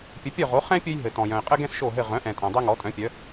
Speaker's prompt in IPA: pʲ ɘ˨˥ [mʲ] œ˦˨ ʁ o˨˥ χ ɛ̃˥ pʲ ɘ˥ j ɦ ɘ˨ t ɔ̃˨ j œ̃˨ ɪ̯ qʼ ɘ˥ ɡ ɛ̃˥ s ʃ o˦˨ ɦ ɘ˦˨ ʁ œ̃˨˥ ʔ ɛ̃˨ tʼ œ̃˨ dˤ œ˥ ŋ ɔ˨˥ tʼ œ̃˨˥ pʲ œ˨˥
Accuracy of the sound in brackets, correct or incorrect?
incorrect